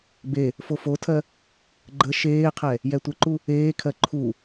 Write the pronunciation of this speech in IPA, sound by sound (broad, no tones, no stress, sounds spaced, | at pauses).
b e | f o f o tʰ ɜ | ɡ͡ǃ ə ʃ eː qʰ ɛ | j ɛ tʷ ə ǃ u | eː kʰ ɜ ǃʰ u